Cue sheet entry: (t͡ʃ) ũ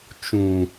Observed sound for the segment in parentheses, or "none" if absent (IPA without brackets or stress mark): t͡ʃ